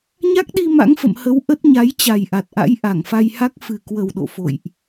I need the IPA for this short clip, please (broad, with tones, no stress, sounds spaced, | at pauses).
ɲ a˦˥ k̚ ɗ i˧ m a̰˧˥ ŋ f ə̰˧˨ m h ə˨˦ w ʔ ə˦˥ t̚ ɲ a˨˦ j t͡ɕ a˨˩ j ʔ a˨˩ t̚ ʔ a̰˧˥ j ʔ a˧˩ ŋ f a˧ j h a˦˥ k̚ f ɨ˨˩ k w ə˨˩ w ɗ o̰˧˨ f o̰˧˨ j ʔ